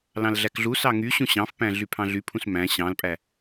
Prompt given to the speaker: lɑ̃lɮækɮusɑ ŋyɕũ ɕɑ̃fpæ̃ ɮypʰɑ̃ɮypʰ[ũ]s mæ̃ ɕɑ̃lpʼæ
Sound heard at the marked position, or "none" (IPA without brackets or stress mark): ũ